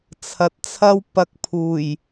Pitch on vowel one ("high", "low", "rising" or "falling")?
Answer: low